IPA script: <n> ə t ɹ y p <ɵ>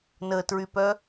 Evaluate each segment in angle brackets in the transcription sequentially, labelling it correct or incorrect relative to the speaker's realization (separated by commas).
correct, incorrect